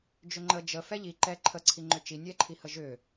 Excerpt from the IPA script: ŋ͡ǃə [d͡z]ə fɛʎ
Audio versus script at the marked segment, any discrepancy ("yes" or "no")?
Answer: yes